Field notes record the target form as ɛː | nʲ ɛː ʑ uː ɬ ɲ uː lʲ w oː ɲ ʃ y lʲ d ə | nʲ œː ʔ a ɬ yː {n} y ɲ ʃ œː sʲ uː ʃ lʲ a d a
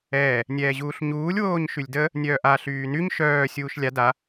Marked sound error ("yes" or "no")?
no